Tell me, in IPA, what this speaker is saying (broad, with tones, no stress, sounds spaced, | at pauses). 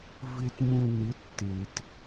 v ɪː˨ t m ũ˨ n ɪ˨˦ tː e˨ t